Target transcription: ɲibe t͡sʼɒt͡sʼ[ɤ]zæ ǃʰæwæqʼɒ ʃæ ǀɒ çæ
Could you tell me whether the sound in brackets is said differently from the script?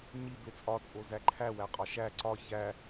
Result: yes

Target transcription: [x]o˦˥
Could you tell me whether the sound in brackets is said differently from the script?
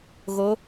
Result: yes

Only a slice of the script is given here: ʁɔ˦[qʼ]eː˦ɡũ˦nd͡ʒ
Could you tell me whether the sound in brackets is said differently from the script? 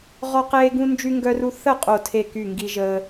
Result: yes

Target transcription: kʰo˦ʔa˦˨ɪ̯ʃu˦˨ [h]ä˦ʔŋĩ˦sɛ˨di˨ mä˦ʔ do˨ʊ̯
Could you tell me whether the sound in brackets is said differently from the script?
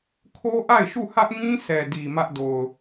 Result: no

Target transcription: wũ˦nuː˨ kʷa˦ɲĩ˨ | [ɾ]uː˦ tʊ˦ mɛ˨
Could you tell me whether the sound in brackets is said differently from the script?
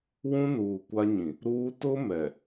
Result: no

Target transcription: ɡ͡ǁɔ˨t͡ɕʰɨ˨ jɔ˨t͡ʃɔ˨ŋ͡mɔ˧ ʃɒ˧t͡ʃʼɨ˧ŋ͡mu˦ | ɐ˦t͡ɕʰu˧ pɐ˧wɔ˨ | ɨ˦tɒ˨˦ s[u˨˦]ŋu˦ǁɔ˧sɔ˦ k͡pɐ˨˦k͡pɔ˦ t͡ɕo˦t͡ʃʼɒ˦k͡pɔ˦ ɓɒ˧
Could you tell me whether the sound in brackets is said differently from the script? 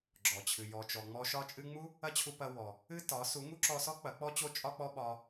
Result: no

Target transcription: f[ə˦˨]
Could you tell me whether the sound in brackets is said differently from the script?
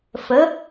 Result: yes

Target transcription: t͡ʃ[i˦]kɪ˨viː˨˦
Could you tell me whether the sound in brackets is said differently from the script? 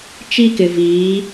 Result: no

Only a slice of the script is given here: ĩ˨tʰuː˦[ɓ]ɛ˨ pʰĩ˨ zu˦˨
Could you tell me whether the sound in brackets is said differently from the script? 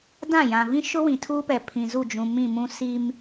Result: yes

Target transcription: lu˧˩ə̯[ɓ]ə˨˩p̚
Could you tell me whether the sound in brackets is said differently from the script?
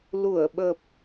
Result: no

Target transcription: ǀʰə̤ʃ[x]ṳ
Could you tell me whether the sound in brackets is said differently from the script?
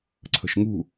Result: yes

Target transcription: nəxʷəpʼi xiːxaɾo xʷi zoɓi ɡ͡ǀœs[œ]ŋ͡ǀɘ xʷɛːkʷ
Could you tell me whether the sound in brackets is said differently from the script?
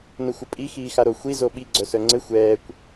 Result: no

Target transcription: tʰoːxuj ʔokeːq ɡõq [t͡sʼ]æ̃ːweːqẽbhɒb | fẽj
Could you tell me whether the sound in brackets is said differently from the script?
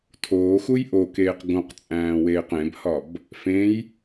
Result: no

